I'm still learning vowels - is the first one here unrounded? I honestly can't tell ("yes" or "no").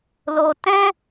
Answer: no